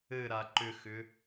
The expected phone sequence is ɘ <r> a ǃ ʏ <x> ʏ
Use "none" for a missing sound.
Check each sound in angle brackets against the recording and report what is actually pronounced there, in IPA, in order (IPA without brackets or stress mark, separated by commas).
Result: ɾ, x